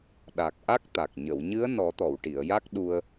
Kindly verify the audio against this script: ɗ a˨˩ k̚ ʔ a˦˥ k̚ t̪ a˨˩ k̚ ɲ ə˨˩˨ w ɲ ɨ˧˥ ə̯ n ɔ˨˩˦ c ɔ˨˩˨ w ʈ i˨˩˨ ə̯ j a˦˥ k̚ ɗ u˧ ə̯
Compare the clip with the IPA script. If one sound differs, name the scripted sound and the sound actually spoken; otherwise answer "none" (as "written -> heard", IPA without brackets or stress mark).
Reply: c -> t̪